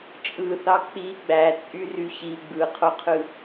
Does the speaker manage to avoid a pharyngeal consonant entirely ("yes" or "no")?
yes